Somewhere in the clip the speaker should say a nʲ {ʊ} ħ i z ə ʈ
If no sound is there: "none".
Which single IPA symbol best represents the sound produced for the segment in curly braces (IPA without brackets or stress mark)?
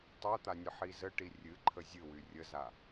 ə